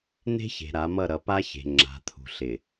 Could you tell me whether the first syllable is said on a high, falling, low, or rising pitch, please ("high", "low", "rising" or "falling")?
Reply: high